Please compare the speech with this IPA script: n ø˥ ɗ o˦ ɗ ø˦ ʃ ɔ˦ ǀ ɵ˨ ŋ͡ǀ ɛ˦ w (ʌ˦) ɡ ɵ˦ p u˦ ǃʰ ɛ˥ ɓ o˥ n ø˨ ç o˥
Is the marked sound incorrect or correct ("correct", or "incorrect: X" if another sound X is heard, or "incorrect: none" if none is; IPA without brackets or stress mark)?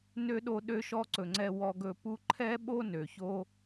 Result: incorrect: ɔ˦